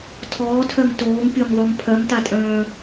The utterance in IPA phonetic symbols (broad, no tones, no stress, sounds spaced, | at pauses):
tʰ ɔː tʰ œ ŋ t oː ŋ pʲ o ŋ ðˤ u ŋ pʰ œ ŋ t a tʼ œ̃ː